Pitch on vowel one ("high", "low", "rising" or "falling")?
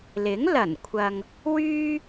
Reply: rising